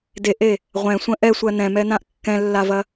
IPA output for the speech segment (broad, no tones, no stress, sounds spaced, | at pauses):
d e ʔ e | ʁʷ ɛ̃ sʷ ə̃ ʔ ɛ sʷ ɜ n ɛ̃ m ɛ n ã ʔ kː ɛ̃ lː a v ɐ